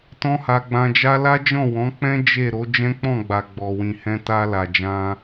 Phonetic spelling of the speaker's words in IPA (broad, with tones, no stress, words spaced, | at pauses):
tɔ̃˦ha˧ ɡ͡bã˧d͡ʒa˦ la˦d͡ʒɔ̃˦˨wɔ̃˨˦k͡pɛ̃˦ d͡ʒe˦˨ ɾo˨˦ d͡ʒɛ̃˦k͡pɔ̃˦˨ɡ͡ba˨ ɡ͡bɔ˨wĩ˨ hɛ̃˧ta˧la˨d͡ʒã˧